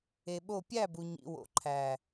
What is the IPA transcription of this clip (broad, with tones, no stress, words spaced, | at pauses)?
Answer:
e˨ɓo˦˨ pʲæ˦˨bu˨ ɲḭ˨wo̰˨ǃʰæ˨